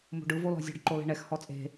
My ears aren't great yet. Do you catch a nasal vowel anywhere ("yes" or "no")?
no